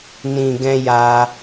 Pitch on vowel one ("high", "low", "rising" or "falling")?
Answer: low